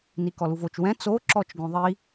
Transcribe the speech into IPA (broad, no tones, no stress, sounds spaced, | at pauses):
n i k ɔ l u v o t͡ʃ w ɛ̃ t͡s o ǁ ɔ t͡ʃ ɡ õ ðˤ i